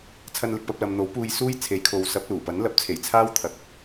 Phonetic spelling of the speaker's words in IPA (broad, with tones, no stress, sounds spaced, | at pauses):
t͡sʰ ɐ˧ n l ɪ˨ k̚ p ɐ˧ p̚ l ɐ˨ m n̪ o˨˥ w p uː˧ j s uː˥ j t͡sʰ e˨˥ j kʰ o˨ w s ɐ˨˥ p̚ l uː˨˩ p ɐ˨˥ n l ɐ˨˥ p̚ t͡sʰ e˨˩ j t͡sʰ aː˥ w t̪ʰ ɐ˧ k̚